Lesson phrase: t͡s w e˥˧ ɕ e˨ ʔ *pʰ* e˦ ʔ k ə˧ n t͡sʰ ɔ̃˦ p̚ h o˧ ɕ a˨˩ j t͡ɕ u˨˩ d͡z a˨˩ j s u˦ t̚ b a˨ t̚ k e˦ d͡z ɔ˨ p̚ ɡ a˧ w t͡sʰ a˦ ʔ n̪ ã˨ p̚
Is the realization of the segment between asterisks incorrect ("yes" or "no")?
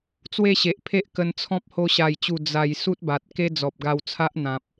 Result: no